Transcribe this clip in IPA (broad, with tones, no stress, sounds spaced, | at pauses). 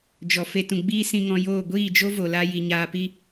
d͡ʒ ɔ˨ f e˧ t ũ˨ ɡ͡b iː˦ s ĩ˧ ŋ ɔ̃˧ j oː˦˨ ɡʷ iː˦˨ d͡ʒ o˦ v o˨ l a˧ j i˨ ɲ aː˧ p i˧